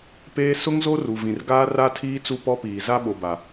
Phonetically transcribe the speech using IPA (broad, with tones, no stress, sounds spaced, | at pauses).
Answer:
p eː˦ s ʊ˦ ŋ z o˦ r u˨ v ĩ˨ r ɡ aː˦ r a˦ tʰ iː˦ t͡s u˦ p ɔ˦ p iː˨ z a˦ ɓ o˨ b a˨